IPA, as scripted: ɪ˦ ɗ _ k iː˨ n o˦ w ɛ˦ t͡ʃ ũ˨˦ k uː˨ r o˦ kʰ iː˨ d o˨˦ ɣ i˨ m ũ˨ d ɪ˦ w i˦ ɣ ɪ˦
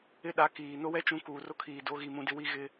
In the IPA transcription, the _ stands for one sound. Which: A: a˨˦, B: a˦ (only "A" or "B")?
A